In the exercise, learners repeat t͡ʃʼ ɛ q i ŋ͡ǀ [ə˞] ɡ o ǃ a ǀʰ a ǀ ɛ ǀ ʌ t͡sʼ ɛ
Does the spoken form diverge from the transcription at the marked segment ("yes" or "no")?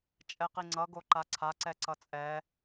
yes